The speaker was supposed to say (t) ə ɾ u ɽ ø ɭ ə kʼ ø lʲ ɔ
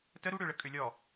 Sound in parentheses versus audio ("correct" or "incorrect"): correct